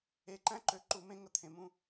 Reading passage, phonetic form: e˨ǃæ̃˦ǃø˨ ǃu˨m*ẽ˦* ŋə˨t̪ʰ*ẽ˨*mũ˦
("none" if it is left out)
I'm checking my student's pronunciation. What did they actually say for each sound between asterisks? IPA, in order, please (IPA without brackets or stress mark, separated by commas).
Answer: ẽ˦, ẽ˨